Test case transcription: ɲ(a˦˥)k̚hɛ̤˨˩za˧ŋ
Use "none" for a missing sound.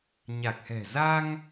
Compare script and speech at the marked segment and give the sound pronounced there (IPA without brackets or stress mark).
a˨˩